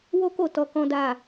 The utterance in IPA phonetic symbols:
w o˦ k o˦˨ t ɔ˧ k ɔ̃˦ d a˦˨

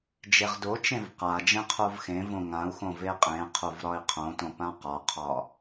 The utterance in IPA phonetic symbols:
d͡ʒ e ʁ d o t͡ʃ ẽ v q a d͡ʒ ẽ qʰ o v x ẽ v õ ŋ ã u̯ x õ v e qʼ ẽ qʰ o v ɾ ɒ i̯ qʰ õ t õ p ã q ɒ qʰ ɒ

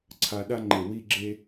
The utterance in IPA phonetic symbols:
ǀʰ a˧ ɗ a˦ ŋ͡ǃ e˨ w i˧ ɡ͡ǁ e˧

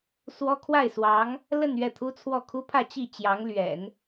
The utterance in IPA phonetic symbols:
s w ɔ˥ kʰ w a˥˩ ɪ̯ s w ɑ˧˥ ŋ | l ə˥˧ n ɥ ɛ˥˩ t̪ʰ u˥ t͡sʰ w ɔ˥˩ kʰ u˥ pʰ ä˥˧ t͡ɕ i˥˩ t͡ɕ j ɑ˧˥ ŋ l ɥ ɛ̰˨˩˦ n

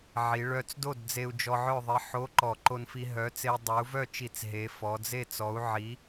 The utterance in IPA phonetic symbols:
ʕ i˩˧ ɭ œ˧ t͡s d o˥˩ d d͡z e˧ u̯ d͡ʒ ɔ˧ ʕ œ˥˩ ðˤ i˩˥ ħ o˧˥˧ ǃ ɔ˧˩˧ ǃ o˧ n f i˧ ɦ œ˩˥ t͡s e˧ i̯ dˤ œ˩˥ u̯ v œ˥˩ t͡ʃ i˧˩˧ t͡s ɦ e˩˥ f ɔ˩˧ d͡z e˥˩ t͡s ɔ˩˥ u̯ ʕ i˩˥

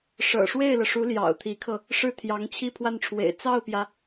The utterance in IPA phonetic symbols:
ʂ ɤ̰˨˩ ʂ w e˥˩ ɪ̯ l ɤ˩ ʂ u˧˥ l j ɑ̰˨˩ ʊ̯ t̪ʰ i˧˥ kʰ ɤ˧ | ʂ ɻ̩˥˩ t̪ʰ j ɑ˧˥ ŋ t͡ɕʰ i˥˧ pʰ w a˥˩ n ʈ͡ʂʰ w ḛ˨˩ ɪ̯ t͡s ɑ˥˩ ʊ̯ p j ä˩

